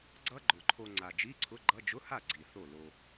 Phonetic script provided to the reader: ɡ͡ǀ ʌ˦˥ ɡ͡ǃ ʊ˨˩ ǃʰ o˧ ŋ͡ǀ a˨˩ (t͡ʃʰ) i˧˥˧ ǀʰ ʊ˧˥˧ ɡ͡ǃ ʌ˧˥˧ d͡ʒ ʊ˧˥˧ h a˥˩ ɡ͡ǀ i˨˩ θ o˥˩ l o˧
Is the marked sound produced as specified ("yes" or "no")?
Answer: no